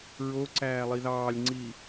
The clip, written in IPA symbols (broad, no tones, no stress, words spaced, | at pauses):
ɹoǀæː lˠiðɑːlʲŋ͡ǀiː